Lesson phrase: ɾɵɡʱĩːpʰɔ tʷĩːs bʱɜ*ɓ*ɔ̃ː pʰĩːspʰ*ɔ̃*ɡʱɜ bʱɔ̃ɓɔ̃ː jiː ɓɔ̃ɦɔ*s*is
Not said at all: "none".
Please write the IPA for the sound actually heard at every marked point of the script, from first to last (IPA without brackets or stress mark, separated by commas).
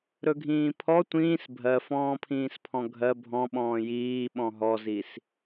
f, ɔ̃, z